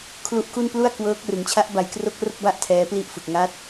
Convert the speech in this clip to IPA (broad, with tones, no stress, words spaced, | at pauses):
kʰlu˦˥ʔku˥˩n plu˥˩a̯ kwɤː˦˥k̚rɯ˩˦ŋ t͡ɕʰa˦˥ʔba˨˩jkro˦˥k̚ ro˥˩k̚ba˥˩ʔ tʰɛː˦˥pli˥˩ʔfɯ˨˩k̚ ŋa˦˥t̚